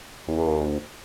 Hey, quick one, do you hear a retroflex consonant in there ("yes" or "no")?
no